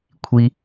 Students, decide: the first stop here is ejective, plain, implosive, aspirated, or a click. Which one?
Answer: aspirated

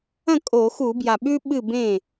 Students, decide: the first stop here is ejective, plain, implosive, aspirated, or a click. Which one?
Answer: ejective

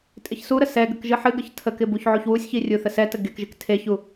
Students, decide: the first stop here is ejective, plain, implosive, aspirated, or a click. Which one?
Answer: ejective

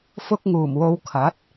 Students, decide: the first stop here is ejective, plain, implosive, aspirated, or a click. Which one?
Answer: plain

